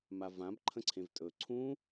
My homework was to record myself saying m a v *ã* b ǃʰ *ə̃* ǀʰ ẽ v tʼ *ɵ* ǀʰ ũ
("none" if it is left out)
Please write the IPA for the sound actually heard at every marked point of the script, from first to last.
ã, ə̃, ɵ

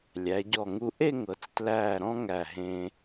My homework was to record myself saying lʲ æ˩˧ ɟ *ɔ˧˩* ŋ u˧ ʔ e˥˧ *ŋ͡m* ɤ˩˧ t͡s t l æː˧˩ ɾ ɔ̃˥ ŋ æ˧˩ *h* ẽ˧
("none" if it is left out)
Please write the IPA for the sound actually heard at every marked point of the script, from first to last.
ɔ˧˩, ŋ, ɦ

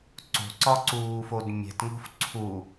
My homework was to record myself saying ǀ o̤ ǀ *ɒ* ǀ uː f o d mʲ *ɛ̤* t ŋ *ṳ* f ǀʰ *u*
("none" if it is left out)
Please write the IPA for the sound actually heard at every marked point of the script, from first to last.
ɒ, ɛ̤, o̤, u

